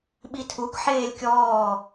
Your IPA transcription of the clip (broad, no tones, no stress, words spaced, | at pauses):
ɓitʰuk ħeːlʲkʲɔː